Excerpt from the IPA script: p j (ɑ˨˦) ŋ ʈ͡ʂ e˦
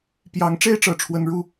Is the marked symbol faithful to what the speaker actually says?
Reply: yes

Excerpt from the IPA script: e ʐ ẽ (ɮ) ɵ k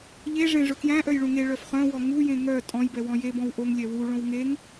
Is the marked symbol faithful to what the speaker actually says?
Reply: no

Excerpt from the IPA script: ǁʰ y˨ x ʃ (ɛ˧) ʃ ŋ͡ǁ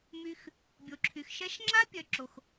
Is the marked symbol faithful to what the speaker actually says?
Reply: yes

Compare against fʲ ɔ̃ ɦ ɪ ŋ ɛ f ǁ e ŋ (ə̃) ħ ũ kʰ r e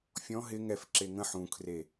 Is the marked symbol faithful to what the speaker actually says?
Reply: yes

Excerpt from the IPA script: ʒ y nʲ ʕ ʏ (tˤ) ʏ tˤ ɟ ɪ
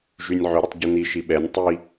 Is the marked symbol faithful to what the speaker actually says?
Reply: no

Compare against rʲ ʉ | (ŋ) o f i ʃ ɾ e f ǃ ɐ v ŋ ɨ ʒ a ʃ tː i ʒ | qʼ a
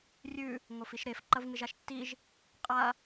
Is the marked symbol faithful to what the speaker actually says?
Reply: yes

